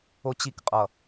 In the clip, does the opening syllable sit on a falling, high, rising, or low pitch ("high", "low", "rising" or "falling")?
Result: high